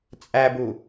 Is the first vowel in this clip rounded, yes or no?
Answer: no